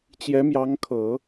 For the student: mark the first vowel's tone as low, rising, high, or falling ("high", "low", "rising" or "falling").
rising